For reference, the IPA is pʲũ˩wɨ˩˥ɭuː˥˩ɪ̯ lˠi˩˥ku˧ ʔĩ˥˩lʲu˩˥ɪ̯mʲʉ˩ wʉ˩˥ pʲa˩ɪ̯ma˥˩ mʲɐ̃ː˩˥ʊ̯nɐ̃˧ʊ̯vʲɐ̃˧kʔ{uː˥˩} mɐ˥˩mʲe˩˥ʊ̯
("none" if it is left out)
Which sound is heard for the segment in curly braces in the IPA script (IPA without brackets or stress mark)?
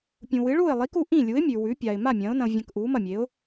uː˩˥